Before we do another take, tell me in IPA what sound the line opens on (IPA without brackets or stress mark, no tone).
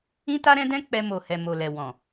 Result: ĩ